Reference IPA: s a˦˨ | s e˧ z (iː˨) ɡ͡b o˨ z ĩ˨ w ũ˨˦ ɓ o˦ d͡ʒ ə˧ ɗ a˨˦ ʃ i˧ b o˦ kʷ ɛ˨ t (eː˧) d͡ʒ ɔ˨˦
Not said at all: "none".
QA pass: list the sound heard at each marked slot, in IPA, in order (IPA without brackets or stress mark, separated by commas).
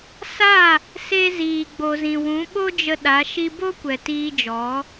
iː˨, iː˧